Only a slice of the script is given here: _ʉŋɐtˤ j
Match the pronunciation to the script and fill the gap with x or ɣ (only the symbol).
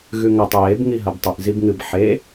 ɣ